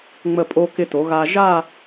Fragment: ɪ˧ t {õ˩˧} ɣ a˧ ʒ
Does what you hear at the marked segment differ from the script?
yes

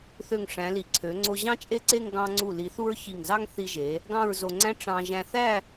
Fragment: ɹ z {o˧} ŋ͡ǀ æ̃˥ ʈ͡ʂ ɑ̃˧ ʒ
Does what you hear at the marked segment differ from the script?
no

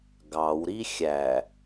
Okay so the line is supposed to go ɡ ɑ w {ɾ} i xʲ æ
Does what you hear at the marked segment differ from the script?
no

